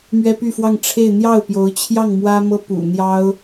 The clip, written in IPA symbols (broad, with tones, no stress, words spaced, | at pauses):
mɥɛ˥py˥˧fwɑ˥˧ŋ ʈ͡ʂʰe˥˧ɪ̯ n̪jɑ˥˩ʊ̯pjo˧˥ʊ̯t͡ɕʰjɑ˥˩ŋ mwä˥mɤ˥ pṵ˨˩ n̪jɑ˥ʊ̯